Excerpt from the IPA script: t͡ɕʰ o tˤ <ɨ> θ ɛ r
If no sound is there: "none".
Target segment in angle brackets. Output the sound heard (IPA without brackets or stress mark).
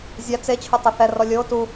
ɨ